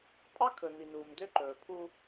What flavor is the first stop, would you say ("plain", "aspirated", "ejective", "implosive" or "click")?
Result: ejective